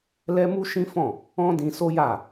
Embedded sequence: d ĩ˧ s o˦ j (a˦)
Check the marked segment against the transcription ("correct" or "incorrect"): incorrect